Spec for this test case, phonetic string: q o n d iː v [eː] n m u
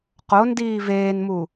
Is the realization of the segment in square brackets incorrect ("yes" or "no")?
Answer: no